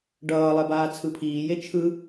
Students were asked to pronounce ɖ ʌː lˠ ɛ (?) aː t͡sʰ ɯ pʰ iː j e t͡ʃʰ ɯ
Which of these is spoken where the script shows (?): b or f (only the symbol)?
b